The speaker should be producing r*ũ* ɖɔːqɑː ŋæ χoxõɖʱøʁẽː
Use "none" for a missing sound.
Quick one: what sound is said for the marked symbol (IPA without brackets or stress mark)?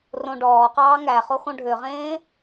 õ